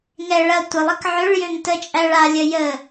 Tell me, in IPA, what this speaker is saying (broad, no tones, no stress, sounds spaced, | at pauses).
ŋ ɛ ɭ ɐ tʷ ə lˠ ɐ k ʕ ʏ ɭ j ø ŋ t ə t͡ʃʼ æ ɭ a lʲ ə j ə